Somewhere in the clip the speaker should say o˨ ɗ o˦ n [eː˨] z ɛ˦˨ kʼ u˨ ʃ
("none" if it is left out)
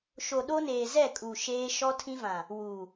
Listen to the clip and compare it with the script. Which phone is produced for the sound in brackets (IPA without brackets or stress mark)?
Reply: eː˨